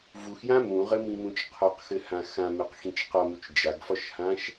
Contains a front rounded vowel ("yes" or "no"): no